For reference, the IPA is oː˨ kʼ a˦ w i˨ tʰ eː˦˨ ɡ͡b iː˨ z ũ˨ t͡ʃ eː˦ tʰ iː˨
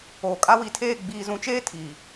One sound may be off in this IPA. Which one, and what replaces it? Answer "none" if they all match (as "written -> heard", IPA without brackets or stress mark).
none